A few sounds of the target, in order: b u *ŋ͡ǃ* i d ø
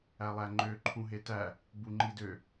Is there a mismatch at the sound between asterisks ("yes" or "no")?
no